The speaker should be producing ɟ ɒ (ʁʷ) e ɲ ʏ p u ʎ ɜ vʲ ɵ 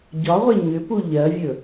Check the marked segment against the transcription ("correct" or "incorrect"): correct